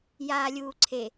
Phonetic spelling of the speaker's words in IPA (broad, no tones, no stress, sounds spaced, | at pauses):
j aː lʲ uː ǀʰ e